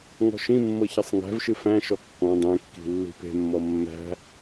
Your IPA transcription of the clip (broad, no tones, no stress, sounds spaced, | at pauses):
ŋ ɔ̤ ʃ ĩ mː ɤ ç ɐ sˤ ŋ æ̤ v ʃ ɨ f æ̃ ʃ ɔ kː ɔ̃ dˤ ẽ kː i̤ lː i̤ p e̤ mː ɔ mː æ̤